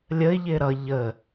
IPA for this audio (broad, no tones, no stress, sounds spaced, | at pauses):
lʲ ə ɪ̯ ʎ ɪː ɾ ʌ ʎ ə